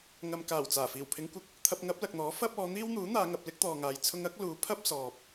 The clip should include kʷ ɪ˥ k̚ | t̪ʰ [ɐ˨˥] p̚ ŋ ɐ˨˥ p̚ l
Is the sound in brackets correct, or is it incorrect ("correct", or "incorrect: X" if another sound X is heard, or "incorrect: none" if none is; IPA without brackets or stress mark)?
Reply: incorrect: ɐ˧